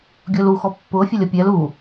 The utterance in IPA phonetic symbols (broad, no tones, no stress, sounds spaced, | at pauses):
ɡʲ ʊː l u x ɔ pː ʊː fʲ ə lʲ ʌ pʲ ɛ l u